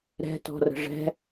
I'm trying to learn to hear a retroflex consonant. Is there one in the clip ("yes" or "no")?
yes